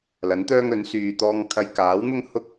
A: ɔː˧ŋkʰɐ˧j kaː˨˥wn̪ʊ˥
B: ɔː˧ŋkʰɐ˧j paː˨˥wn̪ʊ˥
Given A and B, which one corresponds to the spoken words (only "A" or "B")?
A